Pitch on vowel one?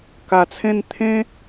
low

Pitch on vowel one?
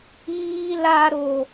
high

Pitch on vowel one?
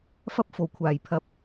high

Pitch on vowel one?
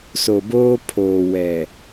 low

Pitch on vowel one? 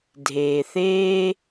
low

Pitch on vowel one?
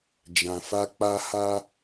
low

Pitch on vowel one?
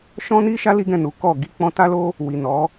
high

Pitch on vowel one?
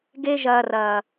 high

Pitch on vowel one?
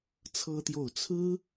high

